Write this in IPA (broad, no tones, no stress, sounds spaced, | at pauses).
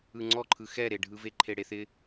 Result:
ɯ ŋ͡ǀ ɔ ǃʰ ɯ x ɛ ɾ e ɖʱ ɯ v e ǃʰ e ɽ e θ ɪ